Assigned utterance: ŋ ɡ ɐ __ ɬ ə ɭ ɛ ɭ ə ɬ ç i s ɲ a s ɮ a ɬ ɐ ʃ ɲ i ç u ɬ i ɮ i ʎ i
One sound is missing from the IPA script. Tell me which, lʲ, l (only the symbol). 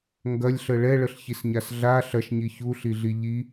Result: lʲ